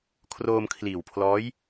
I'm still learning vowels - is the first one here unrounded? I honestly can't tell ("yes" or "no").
no